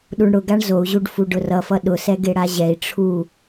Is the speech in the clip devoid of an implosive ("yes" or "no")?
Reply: no